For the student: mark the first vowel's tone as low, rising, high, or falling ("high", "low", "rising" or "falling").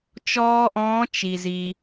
high